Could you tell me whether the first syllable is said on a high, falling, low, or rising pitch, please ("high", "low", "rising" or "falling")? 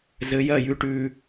rising